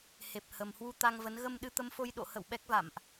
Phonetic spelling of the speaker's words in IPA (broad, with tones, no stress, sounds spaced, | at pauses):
h e˨˩ p̚ h ə˨˩ m h w u˧ t̪ a˧ ŋ v ə˨˦ n ɣ ə˧ m ɗ ɨ˧ t̪ ə˧ m f o˧ j ɗ o̰˧˨ h ə̰˧˨ w ɓ ɛ˦˥ k̚ v a̰˧˨ m ʔ